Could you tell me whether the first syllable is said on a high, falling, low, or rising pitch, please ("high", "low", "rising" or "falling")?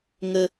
low